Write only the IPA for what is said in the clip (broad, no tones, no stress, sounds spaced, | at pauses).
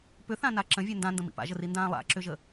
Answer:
p ʏ θ ã n a ǁ ə̃ vʲ ɛ n d ã n d ə̃ m ḭ p a̰ ʒ ə r i n d ãː lˠ a̰ ǁ ʏ ʒ ə